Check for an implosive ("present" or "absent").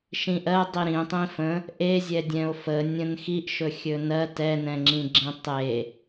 absent